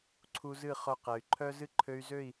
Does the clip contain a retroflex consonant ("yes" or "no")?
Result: no